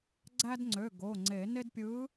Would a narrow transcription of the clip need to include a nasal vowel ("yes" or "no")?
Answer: no